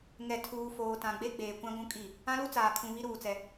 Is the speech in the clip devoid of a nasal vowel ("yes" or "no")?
no